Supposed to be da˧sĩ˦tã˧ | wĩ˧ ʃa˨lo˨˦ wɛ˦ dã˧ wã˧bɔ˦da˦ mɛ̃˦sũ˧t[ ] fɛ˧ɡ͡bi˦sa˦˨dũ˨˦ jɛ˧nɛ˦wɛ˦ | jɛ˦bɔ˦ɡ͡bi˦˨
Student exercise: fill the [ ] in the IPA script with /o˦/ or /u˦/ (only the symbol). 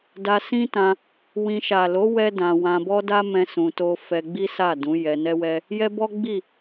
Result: o˦